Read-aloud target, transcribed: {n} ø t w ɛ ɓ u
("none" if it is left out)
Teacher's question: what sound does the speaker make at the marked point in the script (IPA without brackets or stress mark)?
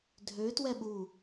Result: dʱ